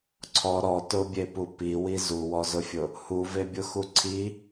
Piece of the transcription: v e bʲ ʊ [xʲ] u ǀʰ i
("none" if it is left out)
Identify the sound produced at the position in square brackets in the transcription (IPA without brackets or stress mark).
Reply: x